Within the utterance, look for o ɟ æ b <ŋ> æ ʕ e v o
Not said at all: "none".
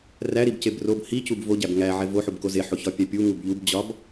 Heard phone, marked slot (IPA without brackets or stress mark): ŋ